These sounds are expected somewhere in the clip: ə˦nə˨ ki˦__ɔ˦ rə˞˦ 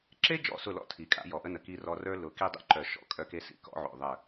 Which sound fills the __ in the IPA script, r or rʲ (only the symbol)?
r